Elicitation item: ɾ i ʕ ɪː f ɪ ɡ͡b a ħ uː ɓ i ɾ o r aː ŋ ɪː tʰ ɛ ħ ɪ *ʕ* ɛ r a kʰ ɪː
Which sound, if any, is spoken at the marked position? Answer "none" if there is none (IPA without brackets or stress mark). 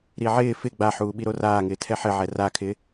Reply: ʕ